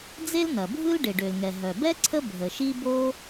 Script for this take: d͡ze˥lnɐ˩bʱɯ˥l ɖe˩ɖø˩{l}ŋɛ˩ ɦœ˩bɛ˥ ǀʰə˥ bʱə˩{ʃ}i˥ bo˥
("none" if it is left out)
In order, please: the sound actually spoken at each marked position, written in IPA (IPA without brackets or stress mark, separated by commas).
l, ʃ